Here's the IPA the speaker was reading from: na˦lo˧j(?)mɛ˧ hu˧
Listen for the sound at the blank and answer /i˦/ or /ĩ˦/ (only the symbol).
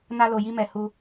i˦